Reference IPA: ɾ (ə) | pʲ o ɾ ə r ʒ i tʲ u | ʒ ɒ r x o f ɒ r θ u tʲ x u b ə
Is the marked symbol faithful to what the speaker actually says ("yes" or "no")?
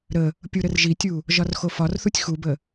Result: yes